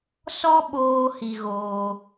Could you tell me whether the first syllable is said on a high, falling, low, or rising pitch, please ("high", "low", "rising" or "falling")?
high